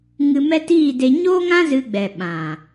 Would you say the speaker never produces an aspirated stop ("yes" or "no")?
yes